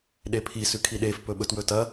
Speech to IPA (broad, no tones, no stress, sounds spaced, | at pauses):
ɗ e pʰ i s ʉ kʰ i ɗ e f p ɵ ɓ ɵ t w ɵ t ɐ